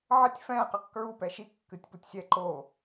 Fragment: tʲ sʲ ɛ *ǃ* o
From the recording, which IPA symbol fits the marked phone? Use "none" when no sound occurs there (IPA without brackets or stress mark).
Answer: ǃ